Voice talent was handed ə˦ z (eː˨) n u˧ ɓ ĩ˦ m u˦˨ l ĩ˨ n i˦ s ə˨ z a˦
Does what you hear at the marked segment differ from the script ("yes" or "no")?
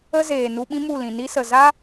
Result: no